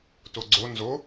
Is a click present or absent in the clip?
present